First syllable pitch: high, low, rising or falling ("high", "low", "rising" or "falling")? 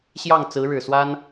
falling